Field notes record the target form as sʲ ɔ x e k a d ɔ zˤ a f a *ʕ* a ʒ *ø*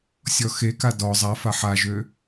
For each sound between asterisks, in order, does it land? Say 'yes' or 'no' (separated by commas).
no, yes